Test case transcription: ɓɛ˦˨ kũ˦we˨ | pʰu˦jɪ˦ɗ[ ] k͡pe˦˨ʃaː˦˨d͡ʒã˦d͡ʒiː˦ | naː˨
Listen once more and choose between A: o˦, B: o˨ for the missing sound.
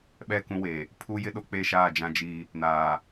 A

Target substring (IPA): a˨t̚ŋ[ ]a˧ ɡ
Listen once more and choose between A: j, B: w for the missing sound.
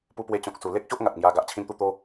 A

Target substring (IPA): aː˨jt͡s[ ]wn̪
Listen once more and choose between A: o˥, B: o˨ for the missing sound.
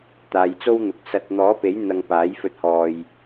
A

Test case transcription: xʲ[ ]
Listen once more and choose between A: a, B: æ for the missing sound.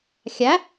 B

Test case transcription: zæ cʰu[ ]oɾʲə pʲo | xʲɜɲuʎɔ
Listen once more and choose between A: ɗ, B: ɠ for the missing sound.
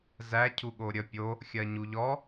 B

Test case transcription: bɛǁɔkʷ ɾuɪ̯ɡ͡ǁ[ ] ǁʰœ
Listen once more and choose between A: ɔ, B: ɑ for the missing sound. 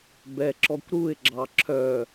B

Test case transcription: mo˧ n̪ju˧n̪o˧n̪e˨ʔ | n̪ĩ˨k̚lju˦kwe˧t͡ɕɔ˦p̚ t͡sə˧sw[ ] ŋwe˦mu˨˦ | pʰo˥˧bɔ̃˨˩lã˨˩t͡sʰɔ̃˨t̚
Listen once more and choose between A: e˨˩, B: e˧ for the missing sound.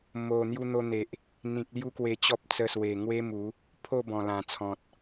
A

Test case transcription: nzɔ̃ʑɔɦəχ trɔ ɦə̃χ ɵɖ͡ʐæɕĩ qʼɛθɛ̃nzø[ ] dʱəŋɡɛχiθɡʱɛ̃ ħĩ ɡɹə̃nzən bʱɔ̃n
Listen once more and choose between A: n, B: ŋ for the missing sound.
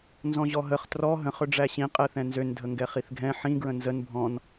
A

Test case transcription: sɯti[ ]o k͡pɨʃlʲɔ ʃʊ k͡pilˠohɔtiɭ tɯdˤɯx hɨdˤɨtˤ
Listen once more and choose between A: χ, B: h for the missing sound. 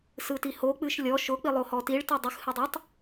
B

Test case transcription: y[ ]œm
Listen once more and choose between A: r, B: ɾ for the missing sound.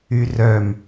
A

